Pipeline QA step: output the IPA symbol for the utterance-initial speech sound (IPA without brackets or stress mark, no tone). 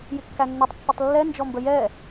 j